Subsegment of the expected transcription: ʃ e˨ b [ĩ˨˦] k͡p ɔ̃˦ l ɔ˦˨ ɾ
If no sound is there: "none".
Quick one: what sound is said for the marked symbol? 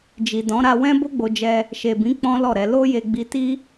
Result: ĩ˨˦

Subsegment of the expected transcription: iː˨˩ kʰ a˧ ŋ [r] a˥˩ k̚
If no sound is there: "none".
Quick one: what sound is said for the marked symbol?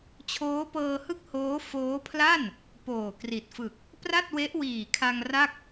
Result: r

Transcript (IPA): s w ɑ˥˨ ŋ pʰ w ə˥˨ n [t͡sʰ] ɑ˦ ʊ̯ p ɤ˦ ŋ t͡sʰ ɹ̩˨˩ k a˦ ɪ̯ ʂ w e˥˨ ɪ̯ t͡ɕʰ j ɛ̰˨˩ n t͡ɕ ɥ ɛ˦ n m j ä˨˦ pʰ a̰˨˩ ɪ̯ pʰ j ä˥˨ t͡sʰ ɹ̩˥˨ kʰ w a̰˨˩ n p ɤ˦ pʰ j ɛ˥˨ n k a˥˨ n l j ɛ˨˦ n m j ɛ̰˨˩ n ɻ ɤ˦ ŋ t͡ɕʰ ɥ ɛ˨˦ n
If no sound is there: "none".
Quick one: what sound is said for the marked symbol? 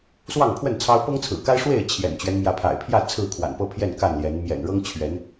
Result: t͡sʰ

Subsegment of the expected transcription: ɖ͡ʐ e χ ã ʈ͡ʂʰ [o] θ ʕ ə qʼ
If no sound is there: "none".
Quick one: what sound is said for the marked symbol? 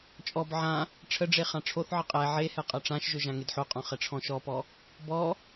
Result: o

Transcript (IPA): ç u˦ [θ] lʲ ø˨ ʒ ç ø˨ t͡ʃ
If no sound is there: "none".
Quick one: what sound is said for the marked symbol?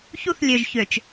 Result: θ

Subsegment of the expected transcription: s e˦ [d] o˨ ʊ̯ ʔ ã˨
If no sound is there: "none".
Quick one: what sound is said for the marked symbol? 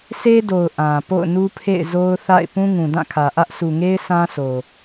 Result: d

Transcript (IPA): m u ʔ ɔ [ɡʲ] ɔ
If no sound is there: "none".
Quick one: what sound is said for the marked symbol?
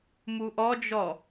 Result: d͡ʒ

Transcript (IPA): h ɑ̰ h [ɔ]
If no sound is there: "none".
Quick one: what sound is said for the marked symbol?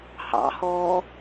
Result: ɔ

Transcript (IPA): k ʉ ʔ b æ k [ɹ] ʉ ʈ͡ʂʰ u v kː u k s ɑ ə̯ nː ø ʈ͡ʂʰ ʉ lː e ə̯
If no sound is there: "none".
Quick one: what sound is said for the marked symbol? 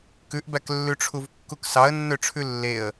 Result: lː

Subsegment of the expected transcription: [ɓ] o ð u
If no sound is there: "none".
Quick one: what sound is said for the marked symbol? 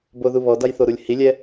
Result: b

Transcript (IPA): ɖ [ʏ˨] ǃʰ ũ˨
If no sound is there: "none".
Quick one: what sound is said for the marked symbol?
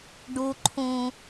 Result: u˨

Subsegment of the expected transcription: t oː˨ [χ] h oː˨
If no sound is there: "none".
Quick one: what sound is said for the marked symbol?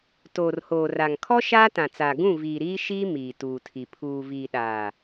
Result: r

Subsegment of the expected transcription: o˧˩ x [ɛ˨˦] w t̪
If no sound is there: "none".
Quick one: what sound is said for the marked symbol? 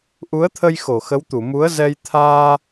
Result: ə˨˦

